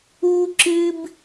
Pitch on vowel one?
high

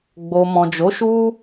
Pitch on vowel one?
low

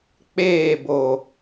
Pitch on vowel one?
falling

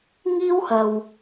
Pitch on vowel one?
high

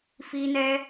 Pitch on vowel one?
high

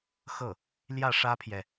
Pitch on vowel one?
falling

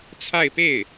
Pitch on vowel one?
falling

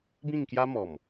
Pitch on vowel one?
falling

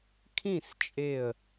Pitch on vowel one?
falling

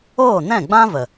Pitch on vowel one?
falling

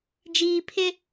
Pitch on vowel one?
low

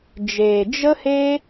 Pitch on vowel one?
low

